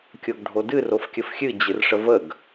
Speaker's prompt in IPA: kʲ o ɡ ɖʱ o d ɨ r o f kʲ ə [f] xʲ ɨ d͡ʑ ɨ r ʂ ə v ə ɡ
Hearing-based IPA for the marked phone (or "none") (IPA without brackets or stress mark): f